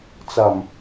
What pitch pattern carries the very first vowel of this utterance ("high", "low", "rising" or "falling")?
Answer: low